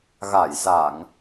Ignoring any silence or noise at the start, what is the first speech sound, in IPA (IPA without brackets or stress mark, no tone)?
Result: ɣ